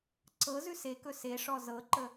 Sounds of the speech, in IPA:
ǀ ɤ z ʉ s e k ɵ s e ʂ ɔ z ɤ ǃ ə

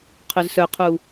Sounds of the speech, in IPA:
qʰ ɵ z s œ qʰ u

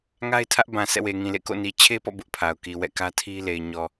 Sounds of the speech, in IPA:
ŋ a˦ ɪ̯ tʰ ä˦ ʔ b ã˨ s ɛ̰˦˨ w e˨ ŋ ĩ˨ l ḛ˦˨ k o̰˦˨ n i˨ t͡ɕʰ e˦ p ɔ̰˦˨ b ʊ˦ ʔ pʰ a˨ ʊ̯ k i˨ w ɛ̰˦˨ k ä˦ tʰ i˦ l e˨ ɪ̯ ɲ ɔ˨

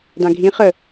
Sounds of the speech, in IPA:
d ã ɡʱ ĩ χ ə

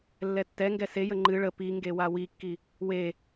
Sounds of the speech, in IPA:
lː ɛ tː ɛ ŋ ɡ ɛ s e j ə ŋ͡ǃ ɨ ɭ ə p i ŋ ɡ e w a w i kː i | w e

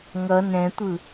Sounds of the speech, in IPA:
ŋ ʌ n ɛ̃ tʷ ɯ

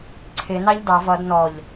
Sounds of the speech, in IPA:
ǀʰ ɪ n ɑ ʎ d ɑ v ʌ d n ɔ ʎ

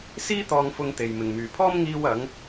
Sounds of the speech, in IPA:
s iː˥ t̪ ɔː˧ ŋ f ʊ˧ ŋ t̪ e˨ j m ɪ˨ ŋ m yː˨ pʰ ɔː˥ m ŋ iː˧ w ɐ˨˧ ŋ

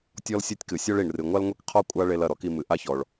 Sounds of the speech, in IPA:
tʲ ɔ˥ l sʲ ɔ˥ tʲ k ɨ˩ sʲ ɔ˥ ɭ i˩ ɳ r ɨ˩ ŋʷ a˥ l ŋʷ e˥ k qʰ ɔ˥ kʷʼ a˥ ɭ e˧ l ɐ˩ ɾ ɔ˥ k i˧ m ɨ˩ ʔ a˥ ç ɔ˩ ɭ

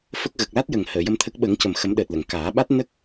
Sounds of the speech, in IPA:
f ə˦˥ k̚ ɣ ə˨˩ k̚ l a˦˥ t̚ j ə˨˩ ŋ h əː˨˩˨ j ə˧ m t̪ʰ ə˦˥ k̚ ɓ ə˨˩˦ ŋ c ə˨˩ m x ə˨˩˦ m ɗ əː˨˩ t̚ l ə˨˩˨ ŋ k aː˨˩˦ ɓ a˦˥ t̚ n ə˦˥ k̚

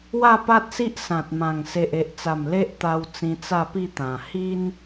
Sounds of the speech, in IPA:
w a˥˧ p a˦ t̚ s i˦ ʔ s ã˨ t̚ m ã˨˩ ŋ s e˨ ʔ e˨ ʔ t͡s a˨˩ m l e˦ ʔ t̪ a˧ w t͡s ĩ˧ t͡s a˥˧ p i˥˧ t̪ ã˨˩ h i˦ n

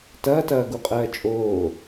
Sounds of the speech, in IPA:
t ɐː t ɐː ɡ u qʼ ɜː t͡ʃʼ oː

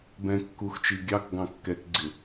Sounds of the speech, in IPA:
b ɛ̃ kː u x t͡ʃ i ɡʲ ɑ k ɡ ɑ̃ kː ɛ k ɡ͡ǀ ɪ

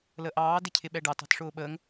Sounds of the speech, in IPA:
l ə ʔ ɑː d ɪ cʰ ɪ ɓ ɛ ɖ ɑ t ɑ̤ t ʂ ʊː ɓ əː ŋ

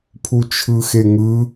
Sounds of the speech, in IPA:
pʰ u t͡ʃʰ ɯ x e ŋ ɯ

